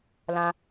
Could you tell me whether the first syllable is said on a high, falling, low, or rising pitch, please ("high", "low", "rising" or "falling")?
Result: high